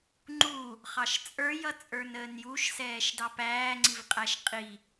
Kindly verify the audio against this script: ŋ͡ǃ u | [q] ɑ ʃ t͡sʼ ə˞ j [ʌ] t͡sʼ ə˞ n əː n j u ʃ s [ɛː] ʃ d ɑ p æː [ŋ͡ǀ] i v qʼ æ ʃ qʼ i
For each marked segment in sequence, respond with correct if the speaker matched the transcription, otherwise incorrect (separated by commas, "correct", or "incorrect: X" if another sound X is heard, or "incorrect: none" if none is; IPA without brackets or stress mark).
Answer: incorrect: χ, correct, correct, correct